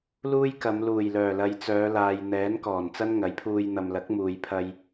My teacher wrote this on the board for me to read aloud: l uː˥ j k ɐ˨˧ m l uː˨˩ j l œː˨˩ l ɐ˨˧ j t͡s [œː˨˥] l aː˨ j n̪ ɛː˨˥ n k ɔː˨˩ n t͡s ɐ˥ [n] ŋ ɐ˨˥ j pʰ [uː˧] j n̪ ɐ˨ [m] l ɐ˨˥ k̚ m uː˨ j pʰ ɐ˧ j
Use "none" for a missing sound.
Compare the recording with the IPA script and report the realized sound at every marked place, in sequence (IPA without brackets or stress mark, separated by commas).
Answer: œː˨˧, n, uː˧, m